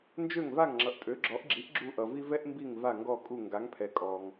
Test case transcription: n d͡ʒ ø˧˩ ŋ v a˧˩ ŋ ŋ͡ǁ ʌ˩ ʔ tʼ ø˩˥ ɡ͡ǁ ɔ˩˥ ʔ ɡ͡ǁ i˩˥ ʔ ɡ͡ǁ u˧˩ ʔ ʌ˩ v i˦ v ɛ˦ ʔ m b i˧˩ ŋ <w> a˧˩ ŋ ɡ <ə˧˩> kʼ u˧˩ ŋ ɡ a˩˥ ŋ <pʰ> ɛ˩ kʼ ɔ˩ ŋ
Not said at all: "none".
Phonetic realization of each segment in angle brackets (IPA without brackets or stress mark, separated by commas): v, ɔ˧˩, pʰ